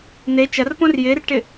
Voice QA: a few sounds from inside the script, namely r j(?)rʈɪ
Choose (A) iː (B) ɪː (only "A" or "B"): B